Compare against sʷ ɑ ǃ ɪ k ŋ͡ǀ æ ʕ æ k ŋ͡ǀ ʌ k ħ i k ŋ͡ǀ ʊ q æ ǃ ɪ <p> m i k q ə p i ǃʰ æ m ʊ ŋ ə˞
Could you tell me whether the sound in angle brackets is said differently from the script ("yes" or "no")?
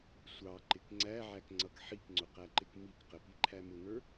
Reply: yes